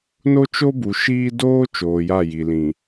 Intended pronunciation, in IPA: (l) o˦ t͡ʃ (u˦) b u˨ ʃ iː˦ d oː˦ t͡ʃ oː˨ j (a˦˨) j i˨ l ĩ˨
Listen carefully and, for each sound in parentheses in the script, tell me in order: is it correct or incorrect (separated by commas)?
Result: incorrect, incorrect, correct